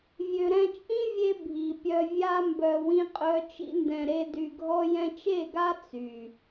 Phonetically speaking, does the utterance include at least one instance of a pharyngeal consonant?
no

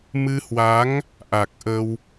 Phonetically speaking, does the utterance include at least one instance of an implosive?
no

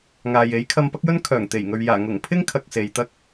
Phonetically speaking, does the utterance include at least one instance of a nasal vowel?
no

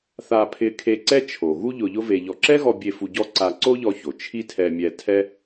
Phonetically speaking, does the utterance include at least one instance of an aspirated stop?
yes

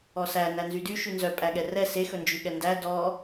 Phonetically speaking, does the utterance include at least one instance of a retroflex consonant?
no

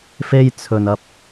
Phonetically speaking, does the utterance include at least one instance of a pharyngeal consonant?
no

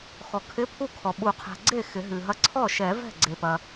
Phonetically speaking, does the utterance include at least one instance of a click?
yes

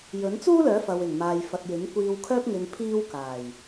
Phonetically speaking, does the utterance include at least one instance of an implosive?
no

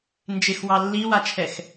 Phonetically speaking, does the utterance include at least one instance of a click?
no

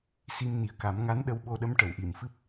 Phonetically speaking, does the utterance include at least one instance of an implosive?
yes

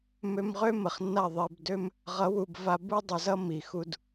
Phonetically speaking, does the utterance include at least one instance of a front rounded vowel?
yes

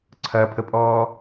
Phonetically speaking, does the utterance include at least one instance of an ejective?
yes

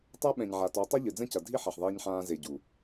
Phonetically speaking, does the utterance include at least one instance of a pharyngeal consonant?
yes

